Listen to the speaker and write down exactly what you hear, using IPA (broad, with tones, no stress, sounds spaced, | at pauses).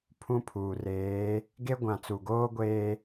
pʰ ũ˦ pʰ uː˨ r eː˨˦ | ɡ e˦ ɡʷ ã˨ t͡s u˨ ɡ oː˦ ɡʷ eː˦